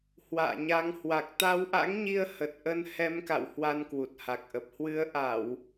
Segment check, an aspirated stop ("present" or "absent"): absent